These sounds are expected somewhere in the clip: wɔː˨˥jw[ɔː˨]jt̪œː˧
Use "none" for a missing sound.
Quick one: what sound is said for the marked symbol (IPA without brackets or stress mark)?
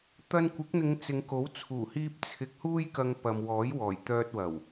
ɔː˨˩